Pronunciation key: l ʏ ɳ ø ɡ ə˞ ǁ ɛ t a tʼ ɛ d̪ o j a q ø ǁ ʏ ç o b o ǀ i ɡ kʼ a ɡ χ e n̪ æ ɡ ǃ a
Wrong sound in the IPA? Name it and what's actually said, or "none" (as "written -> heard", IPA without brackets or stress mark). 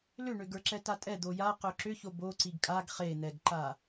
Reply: æ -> ɛ